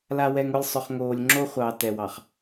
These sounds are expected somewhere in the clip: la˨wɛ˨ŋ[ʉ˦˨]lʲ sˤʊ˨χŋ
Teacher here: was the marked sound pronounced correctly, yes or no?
no